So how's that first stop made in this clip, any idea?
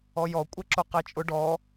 ejective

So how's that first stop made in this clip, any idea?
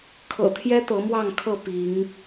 aspirated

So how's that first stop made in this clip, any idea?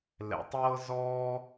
plain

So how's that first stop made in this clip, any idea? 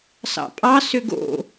ejective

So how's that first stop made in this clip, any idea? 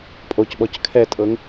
ejective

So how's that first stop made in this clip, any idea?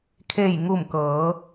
aspirated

